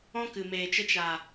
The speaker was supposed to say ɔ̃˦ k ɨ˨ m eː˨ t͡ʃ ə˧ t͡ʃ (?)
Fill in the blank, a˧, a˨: a˨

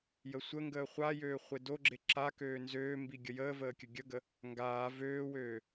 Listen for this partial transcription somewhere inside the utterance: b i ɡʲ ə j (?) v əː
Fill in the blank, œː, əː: əː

